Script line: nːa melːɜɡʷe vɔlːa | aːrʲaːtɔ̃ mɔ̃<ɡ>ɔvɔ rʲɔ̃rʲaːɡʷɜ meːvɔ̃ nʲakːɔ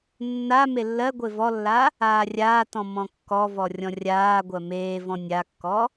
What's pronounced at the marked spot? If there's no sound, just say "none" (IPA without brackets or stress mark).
kː